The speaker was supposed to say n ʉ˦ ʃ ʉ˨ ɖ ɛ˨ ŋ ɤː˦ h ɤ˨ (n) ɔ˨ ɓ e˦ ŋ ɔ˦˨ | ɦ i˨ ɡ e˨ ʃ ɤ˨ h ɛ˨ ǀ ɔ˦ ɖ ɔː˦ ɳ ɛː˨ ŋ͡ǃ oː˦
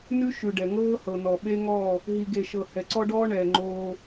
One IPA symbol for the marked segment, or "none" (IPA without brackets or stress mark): n